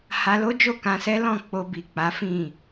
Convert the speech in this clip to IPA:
h a˧ l o˦ d͡ʒ o˦˨ k ã˧ s ɛ˦ l ɔ̃˦˨ k͡p o˧ b i˨ k͡p a˨˦ f ĩ˦˨

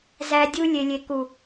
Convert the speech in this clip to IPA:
z æ˦ dʲ u˦ lʲ e˨ lʲ e˨ k u˨

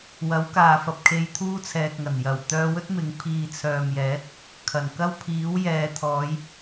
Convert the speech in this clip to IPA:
w ɐ˨˥ w k aː˨ f ɐ˨ p̚ kʰ e˧ j t̪ʰ uː˥ t͡sʰ ɛː˨ k̚ ŋ ɐ˨˩ n j ɐ˨˩ w t̪ œː˧ w ɵ˥ t̚ m ɪ˨˧ ŋ pʰ iː˨ t͡sʰ œː˨ m j ɛː˨˥ t̚ | kʰ ɐ˨˩ n k ɐ˥ w pʰ iː˨˥ w j ɛː˨ t̪ʰ ɔː˨˧ j

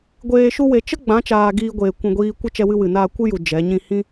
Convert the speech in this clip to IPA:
ɡʷ eː˧ ʃ u˦ w e˧ t͡ʃ ə˦ ɡ͡b ã˨˦ t͡ʃ aː˧ ɡ iː˧ ɡʷ eː˨ kʷ ũ˨ ɡʷ iː˧ kʷ ə˦ t͡ʃ ɛ˧ w ɨ˧ w ɨ˨ n aː˧ kʷ ɨ˦ j u˨ d͡ʒ ɛ˨˦ ɲ ĩ˧ h ĩ˦

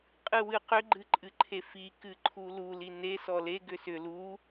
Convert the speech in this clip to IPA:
qʼ ɨ w ɨ q ʏ ɡ͡ǃ ɨ ǃʼ ɨ ǃʰ e f i k ɨ ǃʰ u l u l i n e s ɔ l e ɡ ʏ s ʏ l u

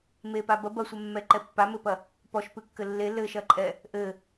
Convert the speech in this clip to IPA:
m e p a b ɐ b ɐ sʷ ɛ mː ɛ ǃ ɛ pː a m ɘ p ɐ | p ɔ ʃ p ɨ kː ɘ lː e l ɘ ʃ ɐ ǃʼ ɛ | ʔ ɘ

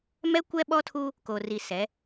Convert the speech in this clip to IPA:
m ɛ˦ kʷ ɛ˦ ɓ ɔ˦ tʰ uː˦ | k o˨ r i˨ s ɛ˨˦

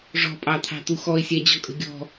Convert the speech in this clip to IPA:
ʐ ɔ̤ pʼ ɑ t̪ʰ ɑ̤ t̪ u x ɔ e̯ sʲ æ d͡ʑ ɔ kʼ ə̤ ɡʲ ɔ̤

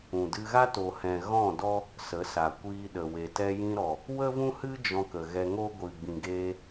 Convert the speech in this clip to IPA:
ũ˨ d ɨ˧ ɣ a˦ t o˨ h ɛ̃˨ ɣ ɔ̃˦˨ d ɔ˦ | s ə˨˦ s a˨ kʷ iː˧ ɗ ə˨ w e˨ t ɛ˧ j ĩ˧ ɾ ɔ˨ | w ə˦ v ũ˦ h ɨ˦ d͡ʒ ɔ̃˧ k ə˨ ɣ ɛ˧ ŋ o˦ ɡʷ ɨ˨ ɡ͡b ĩ˨ ɡ eː˧

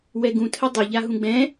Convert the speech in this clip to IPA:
w ɛ ɡ ũ tʰ ə dˤ ɪ ʎ a ɦ ũ ɡ͡b ɛ̃

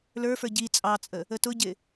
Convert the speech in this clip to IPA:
l ə˞ f ə˞ ɟ i t͡sʼ ɑ t͡sʼ ə | ə t ʊ ɟ ɪ

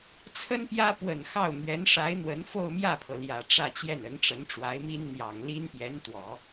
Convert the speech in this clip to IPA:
t͡sʰ ə˥ n p j ä˥ p w ə˨˩ n x ɑ˥˩ ʊ̯ n̪ ɥ ɛ˧˥ n ʂ a˧˥ ɪ̯ n̪ w ə˧˥ n f o˥˧ ʊ̯ m j ä˥˩ pʰ ɤ˩ l j ä˨˩ ʈ͡ʂ ä˥˧ t͡ɕ j ɛ˥˩ n ə˧˥ n ʈ͡ʂ ə˧˥ n ʈ͡ʂ w a˧˥ ɪ̯ m i˥ n n̪ j ɑ˨˩ ŋ l i˥ n p j ɛ˧˥ n t̪ w ɔ˨˩˦

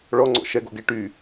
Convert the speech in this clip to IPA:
ɭ ɔ ŋ͡ǀ ɔ̰ ʃ ɛ ɡ o̰ ɡ e ʈ y

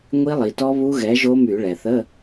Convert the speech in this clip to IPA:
ŋʷ i˦˥ lˠ i˩ t ɔ˦˥ β u˦˥ ɣ ɛ˨˥ ʒ o˦˥ m y˧˩˧ ɭ ɛ˩ θ ə˧˥˧

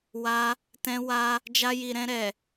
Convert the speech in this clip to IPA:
w a˧ | t ɛ̃˧ w a˧ | d͡ʒ a˧ j i˨ ɾ ɛ̃˧ ɾ ɛ˨

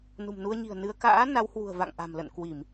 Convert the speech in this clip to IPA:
n ṳ˨˩ m n u˧ ə̯ ɲ i̤˨˩ ə̯ n ɨ˧ ə̯ k a̰ː˧˥ n a˨˦ w h w ṳ˨˩ ə̯ v a̰˧˨ ŋ ʔ a̤˨˩ m l ə̰˧˨ n k w i˧˩˨ m

